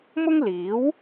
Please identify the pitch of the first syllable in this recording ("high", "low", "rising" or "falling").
high